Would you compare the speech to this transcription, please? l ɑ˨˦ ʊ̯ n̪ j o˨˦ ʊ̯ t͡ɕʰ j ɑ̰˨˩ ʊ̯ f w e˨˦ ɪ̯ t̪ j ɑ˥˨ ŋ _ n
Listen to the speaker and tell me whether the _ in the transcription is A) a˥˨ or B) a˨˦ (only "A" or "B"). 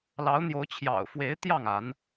B